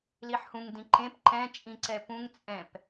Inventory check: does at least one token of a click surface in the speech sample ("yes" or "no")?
yes